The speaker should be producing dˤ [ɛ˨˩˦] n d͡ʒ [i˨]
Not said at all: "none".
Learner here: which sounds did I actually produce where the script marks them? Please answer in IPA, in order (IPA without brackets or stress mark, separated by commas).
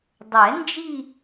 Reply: ɛ˨˩˦, i˦˨